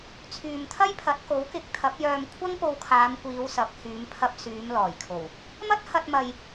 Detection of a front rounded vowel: present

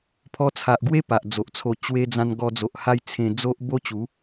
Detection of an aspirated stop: present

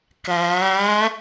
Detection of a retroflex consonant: absent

